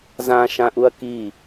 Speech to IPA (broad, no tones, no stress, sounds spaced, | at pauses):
z ã ʃ ã ʔ u ɐ̯ k i